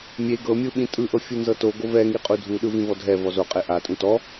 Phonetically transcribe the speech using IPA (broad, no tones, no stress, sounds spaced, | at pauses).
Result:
mʲ e ɡ ɤ mʲ ɯ ɓ ĩ tʼ ɯ ʔ ɤ fʲ u n z ɤ t o ɡ o v ɛ ŋ i qʼ u dʱ u ɗ ɯ v ĩ v ɔ dʱ ɛ v ɔ z o qʼ e ʔ a tʼ ũ t ɔ